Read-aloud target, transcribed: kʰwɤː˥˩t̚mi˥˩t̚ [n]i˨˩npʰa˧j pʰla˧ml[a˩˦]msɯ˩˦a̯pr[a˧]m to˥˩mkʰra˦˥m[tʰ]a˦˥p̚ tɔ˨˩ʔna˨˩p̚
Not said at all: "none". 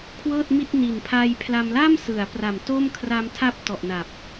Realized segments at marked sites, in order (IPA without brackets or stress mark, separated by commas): n, a˥˩, a˨˩, tʰ